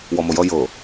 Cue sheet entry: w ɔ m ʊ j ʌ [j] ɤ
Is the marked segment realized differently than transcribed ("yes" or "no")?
no